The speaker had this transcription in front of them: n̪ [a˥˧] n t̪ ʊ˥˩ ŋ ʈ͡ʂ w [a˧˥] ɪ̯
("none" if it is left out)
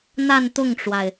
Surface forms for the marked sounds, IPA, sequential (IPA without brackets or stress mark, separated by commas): a˥˧, a˩